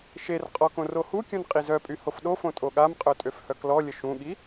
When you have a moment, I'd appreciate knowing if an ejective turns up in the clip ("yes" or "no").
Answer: yes